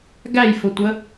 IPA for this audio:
ɡæjfʊtʷə

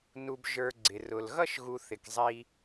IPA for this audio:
nu˨bʒə˞˨ɡ͡ǀɪ˩ rʊ˩lɣʌ˥ʃɣu˨ θɪ˩kzˤi˨

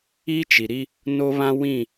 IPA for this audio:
i˦t͡ʃi˨ɾi˦ | no˦βã˦ wĩ˦˨

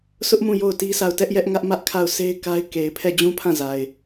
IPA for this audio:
sʰʊ˦ʔmũ˦˨ jo˦˨ʊ̯ti˦sa˦˨ʊ̯ tɛ˦ʔjɛ˦ʔŋä˦ʔ mä˦ʔ kʰa˦˨ʊ̯sʰe˦ɪ̯ ka˦ɪ̯ ke˨ɪ̯ pʰɛ˦˨d͡ʑũ˦pʰã˦˨za˨ɪ̯

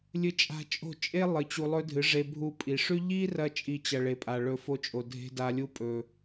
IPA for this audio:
lʲɨ˦t͡ʃʼa̤˦ t͡ʃʼo̤˦˨t͡ʃʼe˦ lˠɨ˨˦t͡ɕu˧lˠɵ˦ dʱɨ˨˦ʐe˧ bʱu˧pʼi˨ʂʉ˦ ʎi˦rɐ˧ t͡ʃʼi˧t͡ɕɐ˨ ɭe˨pʼa˨ɭɵ˧fo˧ t͡ʃʼo˨dʱe̤˧ da˨lʲu˧ pʼɵ˨

